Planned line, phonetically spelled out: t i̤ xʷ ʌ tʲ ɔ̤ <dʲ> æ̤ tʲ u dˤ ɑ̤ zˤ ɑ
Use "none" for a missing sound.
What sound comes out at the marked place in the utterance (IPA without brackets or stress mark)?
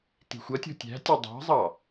tʲ